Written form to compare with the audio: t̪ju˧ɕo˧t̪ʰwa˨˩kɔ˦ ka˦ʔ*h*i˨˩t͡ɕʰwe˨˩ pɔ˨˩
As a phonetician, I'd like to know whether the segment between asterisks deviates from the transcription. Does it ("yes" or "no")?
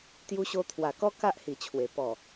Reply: no